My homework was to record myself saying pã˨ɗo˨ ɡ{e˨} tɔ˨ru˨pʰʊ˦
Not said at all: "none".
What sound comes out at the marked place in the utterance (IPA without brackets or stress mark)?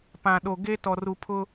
e˦